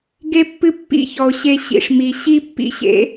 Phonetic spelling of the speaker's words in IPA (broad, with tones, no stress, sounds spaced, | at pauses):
ɡ e˦ pː ɨ˦ pː ḭ˦ ç ɔ˨ o̯ ɕ e˧ ɕ ḭ˧ ʂ m i˨ ɕ i˦ pː ḭ˦ ɕ ḛ˦